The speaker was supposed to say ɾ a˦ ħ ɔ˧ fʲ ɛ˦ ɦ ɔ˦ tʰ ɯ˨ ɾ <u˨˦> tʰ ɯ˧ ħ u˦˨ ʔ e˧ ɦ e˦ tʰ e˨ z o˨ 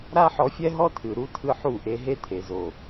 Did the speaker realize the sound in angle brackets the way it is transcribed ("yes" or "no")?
yes